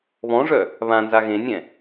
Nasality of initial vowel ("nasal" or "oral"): nasal